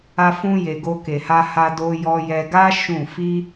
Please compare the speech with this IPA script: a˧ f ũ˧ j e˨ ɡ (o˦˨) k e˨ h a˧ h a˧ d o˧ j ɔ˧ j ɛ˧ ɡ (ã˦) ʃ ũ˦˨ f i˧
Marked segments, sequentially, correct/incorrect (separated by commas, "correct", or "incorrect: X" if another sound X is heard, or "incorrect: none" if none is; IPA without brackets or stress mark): incorrect: o˧, incorrect: a˦